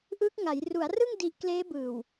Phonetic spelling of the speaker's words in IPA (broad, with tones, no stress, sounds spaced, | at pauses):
ʔ ɯː˦˥ k̚ ŋ a˩˦ j r u˩˦ a̯ r ɯ˥˩ ŋ d i˦˥ ʔ k l eː˦˥ b ɯː˨˩ w